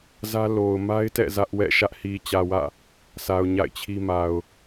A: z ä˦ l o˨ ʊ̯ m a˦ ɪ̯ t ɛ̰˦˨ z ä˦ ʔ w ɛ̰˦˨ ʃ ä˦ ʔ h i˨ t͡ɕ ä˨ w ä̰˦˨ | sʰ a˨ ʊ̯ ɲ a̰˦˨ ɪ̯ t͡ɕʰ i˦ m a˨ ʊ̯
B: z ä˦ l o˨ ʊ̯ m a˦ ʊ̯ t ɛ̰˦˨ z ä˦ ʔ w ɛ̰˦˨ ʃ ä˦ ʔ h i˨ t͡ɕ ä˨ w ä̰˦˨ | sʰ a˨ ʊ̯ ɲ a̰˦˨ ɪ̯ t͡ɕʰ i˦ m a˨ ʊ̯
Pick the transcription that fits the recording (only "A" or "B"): A